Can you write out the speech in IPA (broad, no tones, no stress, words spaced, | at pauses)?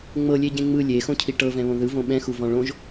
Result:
ŋ͡mɤlʲeɟẽ ŋ͡mɯ lʲexõcʰi ʈɤvɛ̃βõ ðɯvõ ɓɛ̃xuvɔ̃ ɭõʒ